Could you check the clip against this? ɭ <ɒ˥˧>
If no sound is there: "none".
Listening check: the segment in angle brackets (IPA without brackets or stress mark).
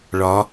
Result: ɒ˨˦